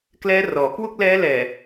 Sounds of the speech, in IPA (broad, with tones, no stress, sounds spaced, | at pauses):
k l ɛː˦˥ r ɔː˩˦ k w u˥˩ k̚ l ɛː˦˥ l ɛː˨˩